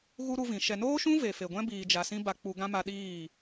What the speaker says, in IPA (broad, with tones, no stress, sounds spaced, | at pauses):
ɣ u˦ ɾ u˧ v ĩ˨ ʃ ɛ˨ n oː˦ ʃ ũ˦ v e˨ f e˨ ɡʷ ɛ̃˦ b iː˨ d͡ʒ a˨ s ĩ˦ b a˧ k͡p u˧ ɡ ã˦ m a˧ ɗ iː˦˨